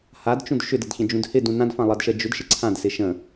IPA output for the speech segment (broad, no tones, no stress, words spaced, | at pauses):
hadt͡ʃũd ʃʏdədçə̃d͡ʒũd hɪdũ nãdfãlˠʌdʃɜ d͡ʒʏdʃɪ ǀʰãdsɪ ʃə̃